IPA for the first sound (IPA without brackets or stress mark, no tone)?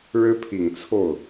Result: ɻ